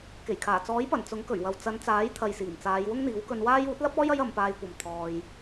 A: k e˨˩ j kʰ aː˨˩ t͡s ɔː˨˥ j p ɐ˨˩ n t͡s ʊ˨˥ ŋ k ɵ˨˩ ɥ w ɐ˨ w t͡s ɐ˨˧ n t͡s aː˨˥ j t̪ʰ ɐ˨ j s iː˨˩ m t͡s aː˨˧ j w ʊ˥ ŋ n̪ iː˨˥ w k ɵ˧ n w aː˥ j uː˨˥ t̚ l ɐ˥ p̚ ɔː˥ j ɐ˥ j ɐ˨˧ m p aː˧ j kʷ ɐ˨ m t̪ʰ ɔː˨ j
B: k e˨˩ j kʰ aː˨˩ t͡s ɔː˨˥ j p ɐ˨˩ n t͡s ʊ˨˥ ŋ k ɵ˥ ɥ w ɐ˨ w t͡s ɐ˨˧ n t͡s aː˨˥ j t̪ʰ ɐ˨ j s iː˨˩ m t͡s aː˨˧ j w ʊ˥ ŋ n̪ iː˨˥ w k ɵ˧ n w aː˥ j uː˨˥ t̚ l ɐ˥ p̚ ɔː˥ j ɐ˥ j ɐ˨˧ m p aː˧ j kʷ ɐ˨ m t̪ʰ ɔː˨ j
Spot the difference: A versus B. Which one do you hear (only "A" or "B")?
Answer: A